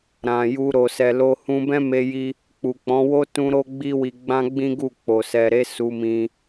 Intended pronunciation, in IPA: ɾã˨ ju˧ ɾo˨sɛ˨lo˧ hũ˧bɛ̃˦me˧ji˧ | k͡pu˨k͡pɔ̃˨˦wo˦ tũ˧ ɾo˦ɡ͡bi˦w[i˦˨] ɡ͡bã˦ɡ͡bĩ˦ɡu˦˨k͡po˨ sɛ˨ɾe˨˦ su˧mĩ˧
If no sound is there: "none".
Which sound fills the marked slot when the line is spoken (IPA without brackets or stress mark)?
i˧